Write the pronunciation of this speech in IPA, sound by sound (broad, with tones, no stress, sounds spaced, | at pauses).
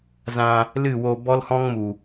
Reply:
z ã˧ | l ɨ˦˨ w o˧ b ɔ˦ l h ɔ̃˦ ŋ m u˨